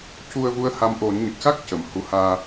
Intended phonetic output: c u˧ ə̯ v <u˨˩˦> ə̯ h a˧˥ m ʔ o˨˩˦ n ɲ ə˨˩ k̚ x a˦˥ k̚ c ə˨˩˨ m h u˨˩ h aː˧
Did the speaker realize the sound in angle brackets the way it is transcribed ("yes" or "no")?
no